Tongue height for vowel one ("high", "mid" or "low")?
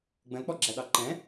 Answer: mid